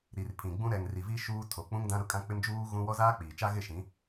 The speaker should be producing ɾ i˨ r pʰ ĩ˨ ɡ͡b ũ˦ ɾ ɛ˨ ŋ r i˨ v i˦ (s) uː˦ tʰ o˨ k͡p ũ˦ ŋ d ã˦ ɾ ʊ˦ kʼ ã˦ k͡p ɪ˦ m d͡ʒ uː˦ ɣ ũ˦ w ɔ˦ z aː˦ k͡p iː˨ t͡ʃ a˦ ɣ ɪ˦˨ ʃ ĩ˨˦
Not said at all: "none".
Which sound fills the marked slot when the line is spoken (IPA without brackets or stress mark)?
ʃ